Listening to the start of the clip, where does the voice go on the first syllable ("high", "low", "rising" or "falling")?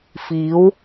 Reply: rising